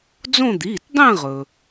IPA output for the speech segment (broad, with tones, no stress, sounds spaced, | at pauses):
d͡z õ˥˧ d̪ iː˩˧˩ t dˤ ẽ˥˧ ʁ ɵ˩